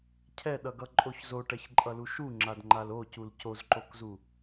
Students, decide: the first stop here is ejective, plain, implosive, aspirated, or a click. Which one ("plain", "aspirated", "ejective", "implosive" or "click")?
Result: aspirated